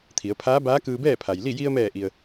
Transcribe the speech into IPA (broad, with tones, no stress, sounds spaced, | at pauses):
t̪ʰ i˩˧ ə̯ pʰ aː˧˥ b aː˧˥ k ɯː˧ b ɛː˥˨ pʰ a˩ j l i˥˨ j i˧ ə̯ m ɛː˧˩ ʔ i˩ ə̯